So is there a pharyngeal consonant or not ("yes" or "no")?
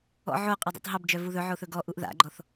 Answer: yes